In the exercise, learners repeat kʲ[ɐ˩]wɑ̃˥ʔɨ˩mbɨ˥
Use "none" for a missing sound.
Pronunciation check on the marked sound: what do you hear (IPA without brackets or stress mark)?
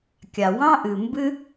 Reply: a˩